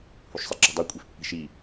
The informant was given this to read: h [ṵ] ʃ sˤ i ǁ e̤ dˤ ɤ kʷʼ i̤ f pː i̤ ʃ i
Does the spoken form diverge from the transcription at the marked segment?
yes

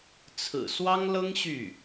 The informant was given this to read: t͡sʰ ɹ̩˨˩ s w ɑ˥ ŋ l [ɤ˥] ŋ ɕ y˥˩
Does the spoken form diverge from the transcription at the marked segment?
no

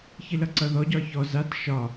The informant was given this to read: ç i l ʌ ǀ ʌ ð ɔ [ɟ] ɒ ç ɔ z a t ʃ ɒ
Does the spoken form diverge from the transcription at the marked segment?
no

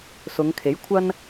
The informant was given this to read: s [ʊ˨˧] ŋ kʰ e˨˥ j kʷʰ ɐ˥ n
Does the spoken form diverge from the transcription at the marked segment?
no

